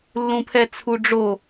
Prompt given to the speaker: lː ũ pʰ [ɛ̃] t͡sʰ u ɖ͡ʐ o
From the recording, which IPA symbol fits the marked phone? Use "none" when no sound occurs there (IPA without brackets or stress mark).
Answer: ɛ